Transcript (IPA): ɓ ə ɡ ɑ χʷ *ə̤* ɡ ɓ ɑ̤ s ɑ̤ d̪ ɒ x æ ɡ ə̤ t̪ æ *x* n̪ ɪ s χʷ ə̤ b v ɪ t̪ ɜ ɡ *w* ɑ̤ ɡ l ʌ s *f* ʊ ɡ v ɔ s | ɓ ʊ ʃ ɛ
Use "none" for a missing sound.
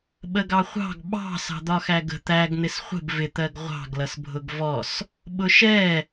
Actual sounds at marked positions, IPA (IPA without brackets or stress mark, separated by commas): ɑ̤, ɡ, ʁʷ, bʱ